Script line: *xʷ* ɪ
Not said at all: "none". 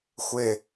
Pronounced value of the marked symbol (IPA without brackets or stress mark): xʷ